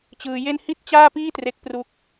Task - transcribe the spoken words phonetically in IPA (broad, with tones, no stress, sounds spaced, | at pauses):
t͡ɕ ɯː˧ j e˥˩ n h i˥˩ t̚ t͡ɕ aː˥˩ p iː˥˩ t r e˦˥ k̚ p r u˦˥ k̚